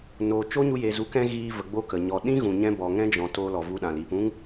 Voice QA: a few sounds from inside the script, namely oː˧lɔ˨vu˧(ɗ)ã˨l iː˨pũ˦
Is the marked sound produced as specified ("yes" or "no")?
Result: yes